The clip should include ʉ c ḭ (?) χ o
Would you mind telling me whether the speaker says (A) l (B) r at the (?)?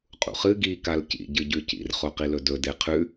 B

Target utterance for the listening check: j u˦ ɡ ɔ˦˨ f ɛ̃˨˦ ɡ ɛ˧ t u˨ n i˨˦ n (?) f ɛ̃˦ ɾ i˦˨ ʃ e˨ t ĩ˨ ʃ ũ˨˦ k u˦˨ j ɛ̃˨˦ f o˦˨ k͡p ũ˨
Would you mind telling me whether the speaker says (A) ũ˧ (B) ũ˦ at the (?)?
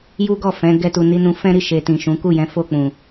A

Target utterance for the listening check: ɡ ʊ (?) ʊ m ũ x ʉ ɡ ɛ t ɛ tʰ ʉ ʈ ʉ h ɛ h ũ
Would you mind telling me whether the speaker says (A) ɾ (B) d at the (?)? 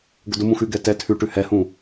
B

